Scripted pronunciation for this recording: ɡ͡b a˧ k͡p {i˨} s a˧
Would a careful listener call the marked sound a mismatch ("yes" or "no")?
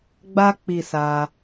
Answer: no